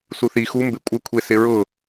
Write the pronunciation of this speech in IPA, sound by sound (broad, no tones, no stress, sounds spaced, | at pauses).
s u θ i x u m b e kʷʼ ɪ kʷʰ e s ɪ ɹ ʊ